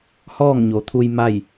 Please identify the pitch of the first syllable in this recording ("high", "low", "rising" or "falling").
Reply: falling